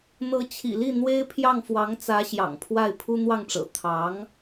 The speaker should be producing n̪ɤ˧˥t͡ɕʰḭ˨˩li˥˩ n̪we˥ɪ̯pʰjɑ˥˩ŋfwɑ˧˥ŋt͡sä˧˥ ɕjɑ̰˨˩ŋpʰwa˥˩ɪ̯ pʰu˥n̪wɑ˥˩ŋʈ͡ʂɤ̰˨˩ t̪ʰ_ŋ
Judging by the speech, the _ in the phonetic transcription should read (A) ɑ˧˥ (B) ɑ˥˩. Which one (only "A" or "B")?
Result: A